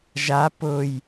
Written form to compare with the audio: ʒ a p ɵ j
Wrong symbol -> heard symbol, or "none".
ɵ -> ʊ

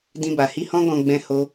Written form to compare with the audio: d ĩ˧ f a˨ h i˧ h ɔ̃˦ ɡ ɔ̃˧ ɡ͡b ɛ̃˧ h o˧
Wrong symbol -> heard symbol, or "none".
f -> b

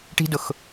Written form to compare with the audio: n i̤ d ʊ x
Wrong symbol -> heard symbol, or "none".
n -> ʈ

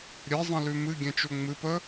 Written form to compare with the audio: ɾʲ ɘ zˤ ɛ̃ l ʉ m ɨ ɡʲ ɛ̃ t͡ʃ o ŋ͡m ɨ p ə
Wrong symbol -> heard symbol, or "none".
none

